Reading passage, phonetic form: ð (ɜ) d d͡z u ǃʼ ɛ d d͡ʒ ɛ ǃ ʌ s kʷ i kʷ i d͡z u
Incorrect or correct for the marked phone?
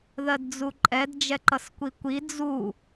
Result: correct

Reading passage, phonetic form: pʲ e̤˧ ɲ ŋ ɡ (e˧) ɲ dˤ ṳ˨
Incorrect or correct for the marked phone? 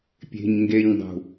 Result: correct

